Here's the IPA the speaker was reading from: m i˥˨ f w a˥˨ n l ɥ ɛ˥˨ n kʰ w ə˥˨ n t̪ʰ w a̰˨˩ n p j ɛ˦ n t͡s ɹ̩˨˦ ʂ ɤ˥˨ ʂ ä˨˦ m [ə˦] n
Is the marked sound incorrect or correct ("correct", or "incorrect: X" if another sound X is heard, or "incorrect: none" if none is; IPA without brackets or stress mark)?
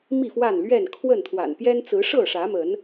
incorrect: ə˨˦